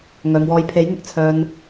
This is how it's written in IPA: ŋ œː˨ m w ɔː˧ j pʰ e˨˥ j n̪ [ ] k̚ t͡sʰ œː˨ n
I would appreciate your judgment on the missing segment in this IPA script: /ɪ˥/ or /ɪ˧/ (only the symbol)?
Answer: ɪ˧